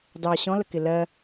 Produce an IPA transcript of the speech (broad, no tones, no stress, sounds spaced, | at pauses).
d ɑ ɕ ɔ̃ l ə k ɪ l ɜ